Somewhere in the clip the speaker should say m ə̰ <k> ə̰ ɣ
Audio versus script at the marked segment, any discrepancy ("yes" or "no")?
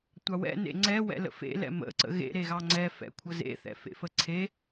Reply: yes